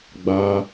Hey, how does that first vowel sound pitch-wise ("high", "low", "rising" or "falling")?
high